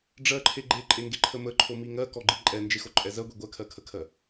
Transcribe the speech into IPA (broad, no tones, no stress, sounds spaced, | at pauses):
ɖ͡ʐ ɜ ǃʰ e ɡ͡ǃ e ǃʼ e ŋ ɡ e ǃʰ ə m ə ǃʰ o m i ŋ ɜ k ɔ ɡ͡ǃ i ǃʼ ɛ n d͡ʒ e x o ǃʼ ɛ z ɜ ɡʷ i ɡʷ ɜ kʰ ɜ kʰ ə kʰ ɜ